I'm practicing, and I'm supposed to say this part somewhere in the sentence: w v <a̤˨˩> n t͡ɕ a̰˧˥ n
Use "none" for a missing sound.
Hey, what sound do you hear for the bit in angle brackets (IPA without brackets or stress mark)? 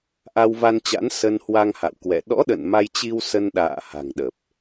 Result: a˧